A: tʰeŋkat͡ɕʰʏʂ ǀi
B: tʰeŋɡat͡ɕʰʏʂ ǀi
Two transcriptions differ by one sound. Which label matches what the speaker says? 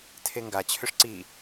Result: B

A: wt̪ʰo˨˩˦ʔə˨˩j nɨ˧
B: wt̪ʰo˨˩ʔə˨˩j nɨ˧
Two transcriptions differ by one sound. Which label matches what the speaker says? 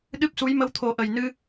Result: A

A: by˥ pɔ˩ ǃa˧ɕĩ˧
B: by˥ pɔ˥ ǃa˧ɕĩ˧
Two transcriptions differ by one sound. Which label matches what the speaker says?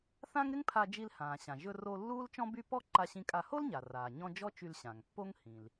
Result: B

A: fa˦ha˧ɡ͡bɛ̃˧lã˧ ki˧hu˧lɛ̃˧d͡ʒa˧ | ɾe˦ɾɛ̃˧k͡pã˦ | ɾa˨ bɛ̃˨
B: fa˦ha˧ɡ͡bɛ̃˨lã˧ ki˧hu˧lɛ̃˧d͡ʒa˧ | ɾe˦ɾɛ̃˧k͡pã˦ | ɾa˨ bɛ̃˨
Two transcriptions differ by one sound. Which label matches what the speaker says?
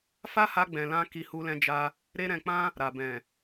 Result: B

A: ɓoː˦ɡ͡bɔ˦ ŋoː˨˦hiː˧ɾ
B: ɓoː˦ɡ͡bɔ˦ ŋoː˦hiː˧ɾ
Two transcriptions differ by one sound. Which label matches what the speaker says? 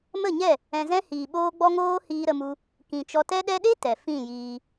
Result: B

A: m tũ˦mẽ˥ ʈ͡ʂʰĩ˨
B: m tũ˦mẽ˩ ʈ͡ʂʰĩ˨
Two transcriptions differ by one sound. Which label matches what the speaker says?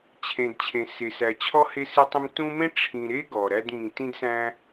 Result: A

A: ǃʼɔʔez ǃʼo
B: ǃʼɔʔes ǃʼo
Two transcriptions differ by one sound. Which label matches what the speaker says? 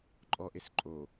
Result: B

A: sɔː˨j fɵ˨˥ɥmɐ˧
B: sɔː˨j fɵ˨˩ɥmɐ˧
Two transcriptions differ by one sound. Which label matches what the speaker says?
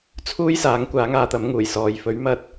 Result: A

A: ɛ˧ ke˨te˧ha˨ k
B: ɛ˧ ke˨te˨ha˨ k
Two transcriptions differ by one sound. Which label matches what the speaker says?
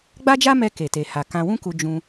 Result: B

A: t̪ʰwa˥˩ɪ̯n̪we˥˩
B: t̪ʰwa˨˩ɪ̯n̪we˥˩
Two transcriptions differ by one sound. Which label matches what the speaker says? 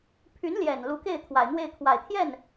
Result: B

